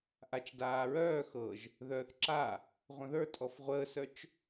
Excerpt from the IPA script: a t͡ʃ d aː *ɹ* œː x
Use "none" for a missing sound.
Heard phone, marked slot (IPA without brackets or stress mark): ɹ